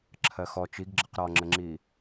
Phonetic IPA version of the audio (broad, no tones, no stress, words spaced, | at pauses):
ǁʰɜxɔ t͡ʃiɡɡ͡ǁʌq ɾɒŋ͡ǁəŋ͡ǁi